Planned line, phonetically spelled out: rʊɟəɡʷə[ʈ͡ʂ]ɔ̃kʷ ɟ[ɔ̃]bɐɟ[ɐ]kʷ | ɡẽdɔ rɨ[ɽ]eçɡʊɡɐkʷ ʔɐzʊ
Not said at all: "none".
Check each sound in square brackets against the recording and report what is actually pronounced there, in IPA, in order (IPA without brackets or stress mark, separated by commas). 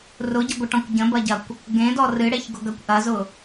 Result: ʈ, ə̃, ɐ, ɽ